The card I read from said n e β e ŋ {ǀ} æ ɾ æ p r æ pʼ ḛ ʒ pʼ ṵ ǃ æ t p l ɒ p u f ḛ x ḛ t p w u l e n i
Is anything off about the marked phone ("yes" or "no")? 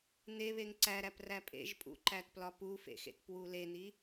no